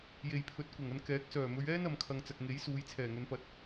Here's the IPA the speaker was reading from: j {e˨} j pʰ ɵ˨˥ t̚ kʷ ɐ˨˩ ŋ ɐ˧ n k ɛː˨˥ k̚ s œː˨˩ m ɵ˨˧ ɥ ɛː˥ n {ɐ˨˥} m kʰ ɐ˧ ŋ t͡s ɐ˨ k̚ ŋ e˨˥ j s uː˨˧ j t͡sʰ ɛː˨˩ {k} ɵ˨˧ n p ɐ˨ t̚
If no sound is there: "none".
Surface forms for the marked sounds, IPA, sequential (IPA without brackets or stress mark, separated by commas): e˨, ɐ˧, ŋ